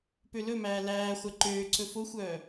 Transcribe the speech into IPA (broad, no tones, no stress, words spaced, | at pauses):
pølɵmæː læː χʷɛǃøːǀɵ foxʷœː